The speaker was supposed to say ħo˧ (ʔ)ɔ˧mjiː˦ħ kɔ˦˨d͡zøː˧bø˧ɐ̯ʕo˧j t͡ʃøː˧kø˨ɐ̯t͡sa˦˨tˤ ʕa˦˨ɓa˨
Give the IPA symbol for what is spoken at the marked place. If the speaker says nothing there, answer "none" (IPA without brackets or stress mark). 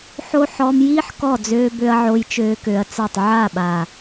ħ